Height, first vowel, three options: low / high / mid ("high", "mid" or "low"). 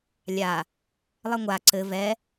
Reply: low